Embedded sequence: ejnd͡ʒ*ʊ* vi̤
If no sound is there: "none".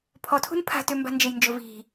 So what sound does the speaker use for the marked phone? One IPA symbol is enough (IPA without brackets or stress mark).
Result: ʊ